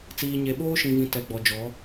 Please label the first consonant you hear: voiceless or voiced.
voiceless